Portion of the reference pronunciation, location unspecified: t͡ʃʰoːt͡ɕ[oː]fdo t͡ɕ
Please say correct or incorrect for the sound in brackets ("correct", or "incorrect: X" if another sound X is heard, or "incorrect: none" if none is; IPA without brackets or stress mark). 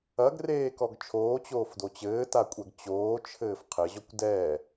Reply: correct